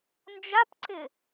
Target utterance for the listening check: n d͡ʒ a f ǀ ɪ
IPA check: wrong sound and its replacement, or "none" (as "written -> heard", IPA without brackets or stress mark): f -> p